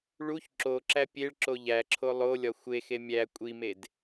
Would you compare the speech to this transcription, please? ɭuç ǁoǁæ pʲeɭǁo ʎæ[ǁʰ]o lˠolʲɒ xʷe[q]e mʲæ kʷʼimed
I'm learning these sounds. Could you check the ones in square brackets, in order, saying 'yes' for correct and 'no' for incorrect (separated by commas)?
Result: yes, no